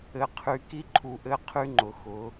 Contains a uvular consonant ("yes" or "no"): yes